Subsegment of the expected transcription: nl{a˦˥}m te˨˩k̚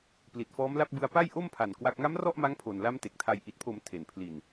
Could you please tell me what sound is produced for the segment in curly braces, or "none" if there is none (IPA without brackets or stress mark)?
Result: a˦˥